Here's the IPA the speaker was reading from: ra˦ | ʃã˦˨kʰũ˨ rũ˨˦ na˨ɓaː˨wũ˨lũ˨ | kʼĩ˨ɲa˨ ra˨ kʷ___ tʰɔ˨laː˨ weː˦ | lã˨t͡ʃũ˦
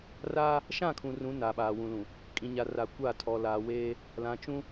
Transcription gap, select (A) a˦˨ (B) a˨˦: A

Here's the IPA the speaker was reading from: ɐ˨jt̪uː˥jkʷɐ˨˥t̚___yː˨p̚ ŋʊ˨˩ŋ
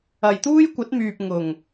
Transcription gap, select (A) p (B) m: B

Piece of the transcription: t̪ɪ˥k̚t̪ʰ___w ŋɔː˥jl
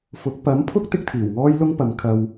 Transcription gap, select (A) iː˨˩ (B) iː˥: A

